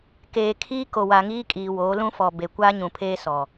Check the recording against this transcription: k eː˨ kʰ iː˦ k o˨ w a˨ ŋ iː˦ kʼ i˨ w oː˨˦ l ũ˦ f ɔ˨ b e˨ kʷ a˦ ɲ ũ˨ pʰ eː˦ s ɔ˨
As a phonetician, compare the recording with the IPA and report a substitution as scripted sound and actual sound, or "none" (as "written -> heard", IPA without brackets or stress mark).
i˨ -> iː˨